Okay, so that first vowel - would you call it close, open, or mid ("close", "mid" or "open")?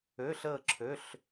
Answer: mid